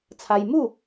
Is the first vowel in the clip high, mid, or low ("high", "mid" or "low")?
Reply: low